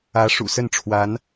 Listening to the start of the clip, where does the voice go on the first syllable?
rising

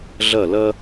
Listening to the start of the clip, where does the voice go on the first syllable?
falling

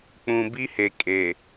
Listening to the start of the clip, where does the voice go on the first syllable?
low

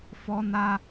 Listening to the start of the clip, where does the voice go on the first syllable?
high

